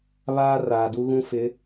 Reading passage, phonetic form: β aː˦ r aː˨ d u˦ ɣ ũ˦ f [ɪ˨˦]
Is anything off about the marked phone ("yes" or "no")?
no